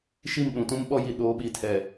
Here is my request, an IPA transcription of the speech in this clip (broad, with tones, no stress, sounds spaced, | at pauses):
ʃ i˦˨ m ɗ ũ˨ t ũ˦ m ɓ ɔ˦ j i˨ ɗ oː˨˦ ɓ i˨ tʰ ɛ˨